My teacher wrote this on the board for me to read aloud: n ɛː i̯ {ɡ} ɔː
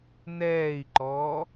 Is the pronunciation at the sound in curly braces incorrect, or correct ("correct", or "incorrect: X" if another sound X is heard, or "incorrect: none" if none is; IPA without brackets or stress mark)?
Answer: incorrect: ǃ